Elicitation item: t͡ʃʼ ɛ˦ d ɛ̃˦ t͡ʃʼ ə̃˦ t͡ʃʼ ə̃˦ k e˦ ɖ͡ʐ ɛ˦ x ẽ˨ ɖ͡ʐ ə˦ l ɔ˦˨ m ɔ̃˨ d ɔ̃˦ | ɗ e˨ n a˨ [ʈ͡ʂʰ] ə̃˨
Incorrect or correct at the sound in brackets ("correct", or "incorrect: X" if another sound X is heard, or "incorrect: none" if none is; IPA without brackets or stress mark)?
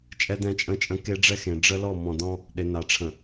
correct